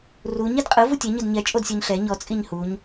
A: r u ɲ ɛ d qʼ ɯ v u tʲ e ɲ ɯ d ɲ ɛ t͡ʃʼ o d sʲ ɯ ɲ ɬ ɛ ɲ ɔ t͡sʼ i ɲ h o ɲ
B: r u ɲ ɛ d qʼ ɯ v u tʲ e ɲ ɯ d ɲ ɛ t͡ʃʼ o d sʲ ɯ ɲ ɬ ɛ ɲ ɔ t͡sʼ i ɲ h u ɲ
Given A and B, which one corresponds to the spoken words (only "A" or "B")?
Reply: B